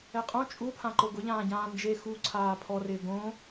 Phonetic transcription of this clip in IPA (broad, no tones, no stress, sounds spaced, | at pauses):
ɛ qʼ õ t͡ʃʼ u pʰ ã ǃ o ɡ ʊ ʎ ãː ɟ ãː n d͡ʒ e x u ǀʰ aː pʰ ɔ r ɪː ɡ õ